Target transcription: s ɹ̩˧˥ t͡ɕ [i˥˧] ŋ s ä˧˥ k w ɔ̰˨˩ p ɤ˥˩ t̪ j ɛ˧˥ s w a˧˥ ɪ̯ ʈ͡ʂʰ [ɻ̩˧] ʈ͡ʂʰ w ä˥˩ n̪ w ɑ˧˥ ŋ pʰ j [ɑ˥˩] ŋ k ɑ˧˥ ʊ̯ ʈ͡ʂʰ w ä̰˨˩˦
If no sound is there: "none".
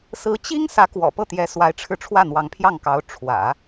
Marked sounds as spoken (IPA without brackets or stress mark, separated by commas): i˥, ɻ̩˧, ɑ˥˩